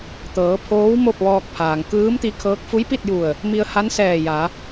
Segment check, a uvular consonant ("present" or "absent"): absent